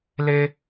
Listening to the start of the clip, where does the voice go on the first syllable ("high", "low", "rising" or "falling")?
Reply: high